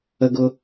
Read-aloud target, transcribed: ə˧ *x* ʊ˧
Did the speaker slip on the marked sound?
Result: yes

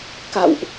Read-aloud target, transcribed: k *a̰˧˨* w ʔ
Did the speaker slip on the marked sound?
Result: no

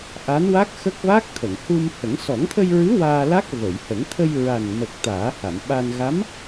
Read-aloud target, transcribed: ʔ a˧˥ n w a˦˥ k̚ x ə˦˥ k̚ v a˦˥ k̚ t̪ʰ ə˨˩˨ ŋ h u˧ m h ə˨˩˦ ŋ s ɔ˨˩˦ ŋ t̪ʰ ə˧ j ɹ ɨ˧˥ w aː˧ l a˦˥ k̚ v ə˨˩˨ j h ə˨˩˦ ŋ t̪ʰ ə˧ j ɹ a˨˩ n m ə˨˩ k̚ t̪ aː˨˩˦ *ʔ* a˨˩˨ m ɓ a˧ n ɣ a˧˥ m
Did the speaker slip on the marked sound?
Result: yes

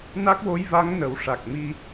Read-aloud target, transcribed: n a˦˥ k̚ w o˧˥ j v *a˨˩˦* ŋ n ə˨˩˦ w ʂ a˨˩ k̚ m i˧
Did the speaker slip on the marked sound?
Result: yes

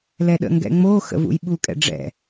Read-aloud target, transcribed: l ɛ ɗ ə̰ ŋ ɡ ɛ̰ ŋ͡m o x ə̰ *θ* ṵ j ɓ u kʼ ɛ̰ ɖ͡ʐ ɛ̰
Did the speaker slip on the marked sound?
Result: yes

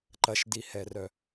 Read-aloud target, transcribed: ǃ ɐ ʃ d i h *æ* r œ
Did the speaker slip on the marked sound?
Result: yes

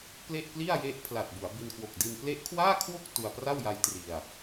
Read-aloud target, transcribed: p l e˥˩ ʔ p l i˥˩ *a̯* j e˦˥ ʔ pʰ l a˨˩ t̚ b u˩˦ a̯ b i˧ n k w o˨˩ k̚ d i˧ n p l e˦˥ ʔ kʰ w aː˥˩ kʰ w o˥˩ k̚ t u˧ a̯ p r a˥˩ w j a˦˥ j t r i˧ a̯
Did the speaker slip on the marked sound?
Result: no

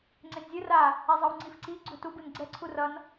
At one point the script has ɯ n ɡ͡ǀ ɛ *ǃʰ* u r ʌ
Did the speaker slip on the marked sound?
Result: yes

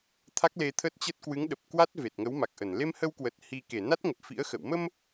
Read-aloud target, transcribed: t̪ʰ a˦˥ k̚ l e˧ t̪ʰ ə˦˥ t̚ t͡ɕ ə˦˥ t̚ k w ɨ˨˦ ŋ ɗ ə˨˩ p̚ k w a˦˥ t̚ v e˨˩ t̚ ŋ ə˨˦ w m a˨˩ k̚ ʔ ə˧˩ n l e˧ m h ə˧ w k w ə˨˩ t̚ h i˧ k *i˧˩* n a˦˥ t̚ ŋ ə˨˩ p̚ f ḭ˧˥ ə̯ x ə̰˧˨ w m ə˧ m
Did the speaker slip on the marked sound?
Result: yes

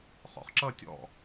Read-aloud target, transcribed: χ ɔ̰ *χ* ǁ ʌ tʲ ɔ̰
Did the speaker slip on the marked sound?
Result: no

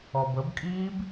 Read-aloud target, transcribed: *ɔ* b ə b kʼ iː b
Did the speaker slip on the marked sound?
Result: no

